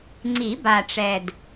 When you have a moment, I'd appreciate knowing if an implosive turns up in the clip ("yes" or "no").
no